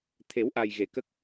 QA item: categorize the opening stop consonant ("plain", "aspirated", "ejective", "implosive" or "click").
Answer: aspirated